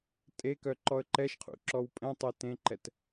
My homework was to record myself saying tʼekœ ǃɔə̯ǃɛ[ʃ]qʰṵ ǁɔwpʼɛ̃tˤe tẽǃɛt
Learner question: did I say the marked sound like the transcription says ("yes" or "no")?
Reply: yes